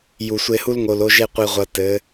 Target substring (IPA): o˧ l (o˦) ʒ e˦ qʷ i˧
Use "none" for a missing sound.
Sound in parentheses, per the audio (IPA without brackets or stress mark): o˦